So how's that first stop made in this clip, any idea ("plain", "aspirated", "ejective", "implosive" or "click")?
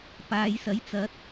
plain